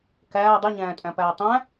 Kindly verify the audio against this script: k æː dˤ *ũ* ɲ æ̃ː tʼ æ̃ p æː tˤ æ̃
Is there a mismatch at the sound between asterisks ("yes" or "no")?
yes